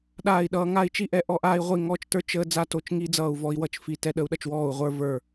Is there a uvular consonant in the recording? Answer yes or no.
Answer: yes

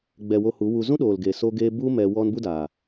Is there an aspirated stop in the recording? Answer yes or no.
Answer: no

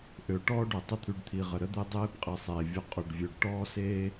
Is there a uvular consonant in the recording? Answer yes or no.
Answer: yes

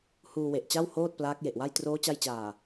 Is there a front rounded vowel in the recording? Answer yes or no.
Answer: no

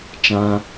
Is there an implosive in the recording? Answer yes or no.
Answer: no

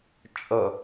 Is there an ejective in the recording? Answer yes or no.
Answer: yes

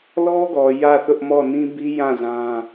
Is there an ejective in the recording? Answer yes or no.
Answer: no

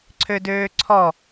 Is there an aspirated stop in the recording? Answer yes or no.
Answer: yes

